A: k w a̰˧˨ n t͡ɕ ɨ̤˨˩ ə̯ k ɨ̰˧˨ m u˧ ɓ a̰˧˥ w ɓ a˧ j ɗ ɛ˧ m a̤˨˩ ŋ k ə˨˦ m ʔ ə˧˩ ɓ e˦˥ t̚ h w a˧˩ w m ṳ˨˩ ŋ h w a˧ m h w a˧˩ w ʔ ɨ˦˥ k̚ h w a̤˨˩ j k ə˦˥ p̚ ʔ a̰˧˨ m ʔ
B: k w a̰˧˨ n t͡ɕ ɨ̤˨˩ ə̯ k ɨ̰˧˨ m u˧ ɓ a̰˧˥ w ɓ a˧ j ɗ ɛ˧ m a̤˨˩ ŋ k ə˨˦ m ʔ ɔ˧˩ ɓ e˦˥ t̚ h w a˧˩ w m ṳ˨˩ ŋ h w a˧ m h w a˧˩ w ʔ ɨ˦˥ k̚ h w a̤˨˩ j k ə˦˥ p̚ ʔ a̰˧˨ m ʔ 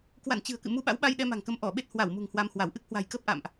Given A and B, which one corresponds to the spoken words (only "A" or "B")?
B